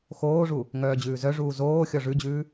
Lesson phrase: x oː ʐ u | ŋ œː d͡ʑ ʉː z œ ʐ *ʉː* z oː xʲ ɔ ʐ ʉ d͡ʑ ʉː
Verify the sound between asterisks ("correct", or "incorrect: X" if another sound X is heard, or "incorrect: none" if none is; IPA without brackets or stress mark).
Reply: incorrect: uː